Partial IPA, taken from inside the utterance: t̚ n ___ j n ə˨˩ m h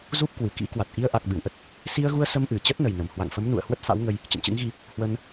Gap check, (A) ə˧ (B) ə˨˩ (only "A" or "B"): B